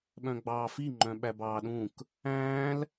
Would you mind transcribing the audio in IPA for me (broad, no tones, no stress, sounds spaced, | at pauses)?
ɓ œ̃ ɡ͡b ɑː f i ŋ͡ǃ œ̃ ɓ æ b ɑː ɗ ũ k | æ̃ː l